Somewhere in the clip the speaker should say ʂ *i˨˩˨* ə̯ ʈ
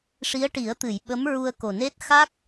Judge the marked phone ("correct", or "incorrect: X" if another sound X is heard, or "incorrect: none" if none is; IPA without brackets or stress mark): incorrect: i˧˥